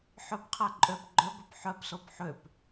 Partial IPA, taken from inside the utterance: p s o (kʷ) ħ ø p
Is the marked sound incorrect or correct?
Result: incorrect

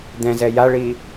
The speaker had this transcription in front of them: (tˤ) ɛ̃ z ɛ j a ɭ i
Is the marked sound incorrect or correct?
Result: incorrect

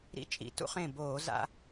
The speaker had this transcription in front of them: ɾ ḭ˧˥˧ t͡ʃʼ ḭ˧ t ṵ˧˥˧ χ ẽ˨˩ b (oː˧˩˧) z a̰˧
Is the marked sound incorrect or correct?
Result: correct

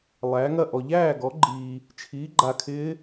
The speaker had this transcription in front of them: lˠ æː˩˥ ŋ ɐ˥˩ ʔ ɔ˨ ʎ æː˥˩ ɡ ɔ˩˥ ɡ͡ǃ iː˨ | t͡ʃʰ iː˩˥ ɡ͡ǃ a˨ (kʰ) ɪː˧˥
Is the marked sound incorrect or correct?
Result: correct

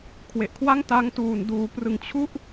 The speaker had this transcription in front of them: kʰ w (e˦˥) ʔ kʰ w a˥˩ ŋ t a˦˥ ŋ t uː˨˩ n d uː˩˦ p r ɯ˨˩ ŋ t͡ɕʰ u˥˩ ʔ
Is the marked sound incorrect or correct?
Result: incorrect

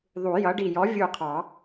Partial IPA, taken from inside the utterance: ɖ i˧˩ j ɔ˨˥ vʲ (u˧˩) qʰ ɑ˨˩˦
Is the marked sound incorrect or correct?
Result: correct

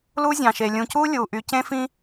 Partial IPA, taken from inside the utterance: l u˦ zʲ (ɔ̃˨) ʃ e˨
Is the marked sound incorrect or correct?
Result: incorrect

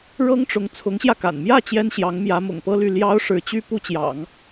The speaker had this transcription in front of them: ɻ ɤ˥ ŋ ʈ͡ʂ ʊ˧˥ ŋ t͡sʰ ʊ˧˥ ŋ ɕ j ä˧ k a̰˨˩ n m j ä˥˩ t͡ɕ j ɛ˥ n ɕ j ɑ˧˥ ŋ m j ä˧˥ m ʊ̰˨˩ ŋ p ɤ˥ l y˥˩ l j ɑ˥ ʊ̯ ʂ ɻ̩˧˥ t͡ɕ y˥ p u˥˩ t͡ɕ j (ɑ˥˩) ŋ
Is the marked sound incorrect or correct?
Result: incorrect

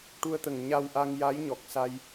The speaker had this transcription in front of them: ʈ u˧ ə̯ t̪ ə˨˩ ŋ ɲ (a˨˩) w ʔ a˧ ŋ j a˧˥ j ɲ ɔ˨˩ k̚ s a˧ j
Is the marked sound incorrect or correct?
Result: incorrect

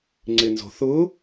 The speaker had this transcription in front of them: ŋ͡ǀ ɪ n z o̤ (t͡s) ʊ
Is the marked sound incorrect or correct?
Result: incorrect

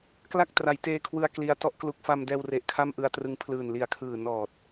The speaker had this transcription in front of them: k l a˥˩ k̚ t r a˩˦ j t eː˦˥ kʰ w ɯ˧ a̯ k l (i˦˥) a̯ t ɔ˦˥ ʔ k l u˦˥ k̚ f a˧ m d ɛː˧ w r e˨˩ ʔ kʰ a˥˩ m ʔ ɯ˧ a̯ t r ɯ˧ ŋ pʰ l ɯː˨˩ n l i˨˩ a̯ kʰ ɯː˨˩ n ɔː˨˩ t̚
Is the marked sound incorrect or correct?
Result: correct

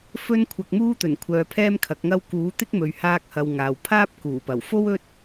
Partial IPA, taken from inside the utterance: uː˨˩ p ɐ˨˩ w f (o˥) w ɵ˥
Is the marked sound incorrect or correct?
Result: correct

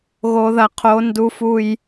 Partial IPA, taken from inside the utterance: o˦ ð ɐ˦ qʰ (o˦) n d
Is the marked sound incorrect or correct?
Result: correct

